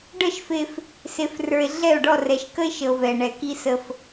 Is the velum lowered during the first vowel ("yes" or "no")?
no